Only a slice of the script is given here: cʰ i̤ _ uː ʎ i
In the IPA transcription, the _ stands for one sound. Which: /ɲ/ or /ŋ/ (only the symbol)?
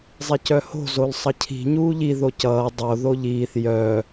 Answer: ɲ